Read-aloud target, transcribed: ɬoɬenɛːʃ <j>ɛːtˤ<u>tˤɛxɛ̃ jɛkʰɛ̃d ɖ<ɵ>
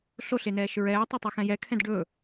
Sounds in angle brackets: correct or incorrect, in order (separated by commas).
incorrect, incorrect, correct